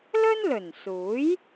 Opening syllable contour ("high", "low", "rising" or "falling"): high